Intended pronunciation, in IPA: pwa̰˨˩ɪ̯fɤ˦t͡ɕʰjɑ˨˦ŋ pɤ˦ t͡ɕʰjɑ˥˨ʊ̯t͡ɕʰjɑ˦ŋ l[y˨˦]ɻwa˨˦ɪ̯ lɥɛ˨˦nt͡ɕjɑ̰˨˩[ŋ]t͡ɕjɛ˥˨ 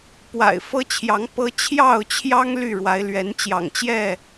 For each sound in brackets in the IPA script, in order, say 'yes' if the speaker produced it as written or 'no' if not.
no, yes

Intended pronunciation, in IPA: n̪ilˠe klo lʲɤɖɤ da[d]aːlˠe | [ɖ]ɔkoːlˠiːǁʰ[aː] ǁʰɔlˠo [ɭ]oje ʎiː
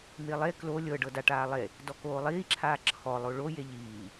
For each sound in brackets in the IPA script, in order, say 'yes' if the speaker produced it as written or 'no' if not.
no, no, yes, yes

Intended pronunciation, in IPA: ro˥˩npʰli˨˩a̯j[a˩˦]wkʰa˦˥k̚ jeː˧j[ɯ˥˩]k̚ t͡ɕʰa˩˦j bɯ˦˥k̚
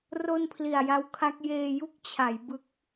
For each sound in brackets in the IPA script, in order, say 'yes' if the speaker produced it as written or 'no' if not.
no, no

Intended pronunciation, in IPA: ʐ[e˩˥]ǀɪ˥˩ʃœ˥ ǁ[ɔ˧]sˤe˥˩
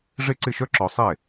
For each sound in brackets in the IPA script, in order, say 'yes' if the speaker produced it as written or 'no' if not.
no, yes

